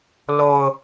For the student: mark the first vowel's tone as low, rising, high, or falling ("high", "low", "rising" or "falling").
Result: low